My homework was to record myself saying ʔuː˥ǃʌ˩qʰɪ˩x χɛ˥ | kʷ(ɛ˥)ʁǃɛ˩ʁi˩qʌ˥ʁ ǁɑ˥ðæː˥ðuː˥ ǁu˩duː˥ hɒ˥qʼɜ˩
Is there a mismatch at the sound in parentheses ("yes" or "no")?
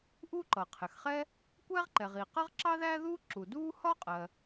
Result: yes